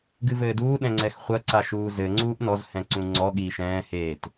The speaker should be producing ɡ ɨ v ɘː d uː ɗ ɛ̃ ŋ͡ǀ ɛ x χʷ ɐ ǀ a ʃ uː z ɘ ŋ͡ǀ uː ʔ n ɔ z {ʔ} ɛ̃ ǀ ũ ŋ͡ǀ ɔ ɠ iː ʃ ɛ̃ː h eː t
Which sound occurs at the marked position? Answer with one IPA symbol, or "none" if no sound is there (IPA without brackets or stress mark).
h